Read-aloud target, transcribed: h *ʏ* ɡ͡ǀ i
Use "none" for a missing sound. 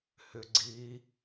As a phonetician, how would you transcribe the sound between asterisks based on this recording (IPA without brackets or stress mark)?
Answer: ʏ